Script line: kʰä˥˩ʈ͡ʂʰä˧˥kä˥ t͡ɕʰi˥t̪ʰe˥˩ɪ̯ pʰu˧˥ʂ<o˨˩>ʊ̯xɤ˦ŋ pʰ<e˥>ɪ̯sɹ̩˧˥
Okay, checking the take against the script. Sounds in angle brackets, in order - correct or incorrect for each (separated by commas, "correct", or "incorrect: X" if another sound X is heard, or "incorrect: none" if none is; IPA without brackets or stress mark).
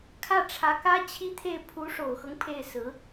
correct, incorrect: e˥˩